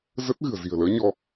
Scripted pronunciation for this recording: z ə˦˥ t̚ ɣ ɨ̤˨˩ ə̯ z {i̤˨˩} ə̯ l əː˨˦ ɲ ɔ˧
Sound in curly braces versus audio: correct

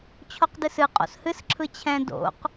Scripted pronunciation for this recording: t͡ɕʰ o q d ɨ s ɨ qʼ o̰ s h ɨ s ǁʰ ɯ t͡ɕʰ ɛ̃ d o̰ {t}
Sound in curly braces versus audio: incorrect: q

